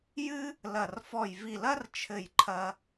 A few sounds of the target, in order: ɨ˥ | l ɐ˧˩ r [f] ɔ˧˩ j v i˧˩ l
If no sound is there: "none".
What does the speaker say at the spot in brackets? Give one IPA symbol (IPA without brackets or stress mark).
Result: f